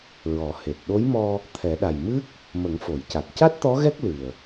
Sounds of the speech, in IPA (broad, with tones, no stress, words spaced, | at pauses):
ɹɔ˨˩˦he˨˩t̚ ɗo˧˥jmɔ˧ | t̪ʰɛ˨˩˦ɗa˨˩j mɨ˦˥k̚ | mə˨˩˦ŋfo˨˩˨jca˨˩t̚ ca˦˥t̚t̪ɔ˧˥ ɣɛ˦˥k̚ lɨ˨˩ə̯